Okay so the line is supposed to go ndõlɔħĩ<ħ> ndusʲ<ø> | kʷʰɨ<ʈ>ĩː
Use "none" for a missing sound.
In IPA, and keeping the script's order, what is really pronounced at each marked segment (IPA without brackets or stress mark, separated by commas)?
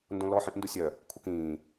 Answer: ʔ, œ, k